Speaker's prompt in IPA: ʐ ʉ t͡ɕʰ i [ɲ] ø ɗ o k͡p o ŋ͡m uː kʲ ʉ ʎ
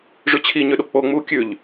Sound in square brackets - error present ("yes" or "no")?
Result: no